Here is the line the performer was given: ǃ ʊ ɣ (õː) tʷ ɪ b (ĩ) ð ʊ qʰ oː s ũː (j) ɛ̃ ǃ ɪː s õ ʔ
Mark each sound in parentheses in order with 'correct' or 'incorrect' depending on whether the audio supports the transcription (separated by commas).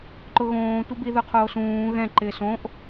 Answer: correct, incorrect, incorrect